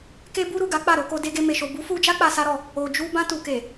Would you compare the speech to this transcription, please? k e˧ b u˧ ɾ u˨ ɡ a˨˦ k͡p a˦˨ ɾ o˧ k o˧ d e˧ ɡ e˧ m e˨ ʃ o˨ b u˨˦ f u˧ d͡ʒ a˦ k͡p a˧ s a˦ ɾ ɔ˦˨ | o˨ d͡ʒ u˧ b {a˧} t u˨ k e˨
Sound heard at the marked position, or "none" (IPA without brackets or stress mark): ã˧